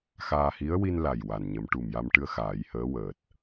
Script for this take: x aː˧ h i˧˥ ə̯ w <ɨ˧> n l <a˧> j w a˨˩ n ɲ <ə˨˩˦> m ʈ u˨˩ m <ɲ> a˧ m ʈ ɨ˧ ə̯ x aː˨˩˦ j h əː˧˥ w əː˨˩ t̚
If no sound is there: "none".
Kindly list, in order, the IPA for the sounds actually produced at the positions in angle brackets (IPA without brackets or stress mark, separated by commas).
i˧, a˨˩, ə˨˩˦, j